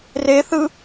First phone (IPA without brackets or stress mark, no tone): r